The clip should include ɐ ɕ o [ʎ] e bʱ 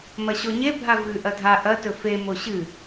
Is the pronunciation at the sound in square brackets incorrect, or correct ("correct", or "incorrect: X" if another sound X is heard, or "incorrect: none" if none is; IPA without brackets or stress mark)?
incorrect: ɲ